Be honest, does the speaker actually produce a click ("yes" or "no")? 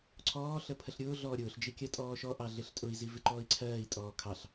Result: yes